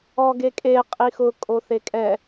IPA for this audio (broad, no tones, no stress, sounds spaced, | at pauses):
ɔ ɡ e kʼ e qʼ i x ʊ kʼ o θ e kʼ ɛ